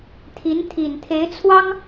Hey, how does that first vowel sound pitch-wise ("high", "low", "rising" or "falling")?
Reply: rising